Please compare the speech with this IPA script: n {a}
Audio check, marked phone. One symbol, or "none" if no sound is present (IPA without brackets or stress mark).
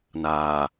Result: aː